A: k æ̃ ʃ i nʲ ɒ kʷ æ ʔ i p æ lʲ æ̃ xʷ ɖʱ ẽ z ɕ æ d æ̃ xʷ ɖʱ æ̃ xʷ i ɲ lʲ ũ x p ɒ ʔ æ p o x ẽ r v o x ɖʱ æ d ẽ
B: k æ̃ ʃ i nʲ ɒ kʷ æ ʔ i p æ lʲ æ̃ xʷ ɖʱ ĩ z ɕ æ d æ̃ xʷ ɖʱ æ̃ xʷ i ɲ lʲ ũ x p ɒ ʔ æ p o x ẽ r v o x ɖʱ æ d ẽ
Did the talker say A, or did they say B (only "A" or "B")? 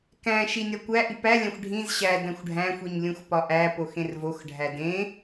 B